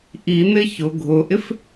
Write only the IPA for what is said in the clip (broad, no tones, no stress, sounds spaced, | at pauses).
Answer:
ʔ i n̪ ɪ ç ʊ ɡʱ ʊ ʔ ɪ f